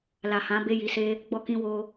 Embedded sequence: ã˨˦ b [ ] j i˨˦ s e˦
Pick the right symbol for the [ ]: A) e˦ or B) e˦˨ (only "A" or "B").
B